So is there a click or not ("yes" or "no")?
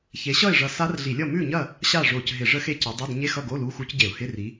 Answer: no